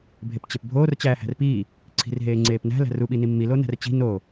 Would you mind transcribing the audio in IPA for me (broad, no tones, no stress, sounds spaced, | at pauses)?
bʱ e p t͡ɕ e p bʱ oː r t͡ɕ æː h æ̤ r p iː | ǀʰ i̤ r ɦ eː ŋ͡ǀ eː p n æ̤ l æ̤ r u ɓ i n i mː i l o n æ̤ r t͡ɕ i̤ n o